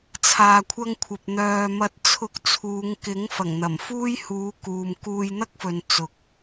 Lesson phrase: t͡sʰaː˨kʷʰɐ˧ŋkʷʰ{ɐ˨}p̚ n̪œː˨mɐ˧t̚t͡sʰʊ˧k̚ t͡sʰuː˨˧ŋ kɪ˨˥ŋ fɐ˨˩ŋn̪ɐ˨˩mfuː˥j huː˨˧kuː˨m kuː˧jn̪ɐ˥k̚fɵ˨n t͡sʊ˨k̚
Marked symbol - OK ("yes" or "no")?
yes